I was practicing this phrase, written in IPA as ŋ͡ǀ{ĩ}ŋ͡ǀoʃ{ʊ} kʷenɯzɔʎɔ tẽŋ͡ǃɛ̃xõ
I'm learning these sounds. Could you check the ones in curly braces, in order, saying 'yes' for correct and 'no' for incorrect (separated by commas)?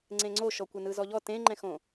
no, no